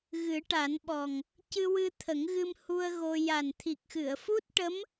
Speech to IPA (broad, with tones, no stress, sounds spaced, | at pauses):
ɣ ɨ˨˩˦ ʈ a˨˩˦ n ɓ ɔ˨˩ ŋ | c ɨ˧ w ɨ˧ t̪ʰ ə˨˩˦ ŋ ɣ ɨ˧ m h u˧ ə̯ ɣ o˧ j a˨˩ n t̪ʰ i˨˩ k̚ x ɨ˨˩˨ ə̯ f u˦˥ t̚ ʈ ə˧˥ m